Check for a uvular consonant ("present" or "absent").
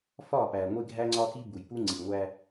absent